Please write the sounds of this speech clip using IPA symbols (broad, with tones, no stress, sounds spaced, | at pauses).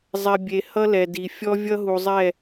zˤ ɛ˨ bʲ e˨ h ʌ˦ l ɛ˨ d i˨ fʲ ɔ˦ vʲ ʌ˦ ɦ u˨ zˤ ɛ˦˨